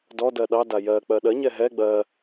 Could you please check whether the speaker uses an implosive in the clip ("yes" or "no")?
yes